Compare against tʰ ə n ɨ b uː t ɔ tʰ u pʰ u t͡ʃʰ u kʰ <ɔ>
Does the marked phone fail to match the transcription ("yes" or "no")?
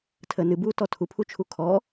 no